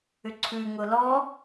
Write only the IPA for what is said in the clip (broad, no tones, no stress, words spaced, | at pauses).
ʏǀʰʉ ŋʊlɔ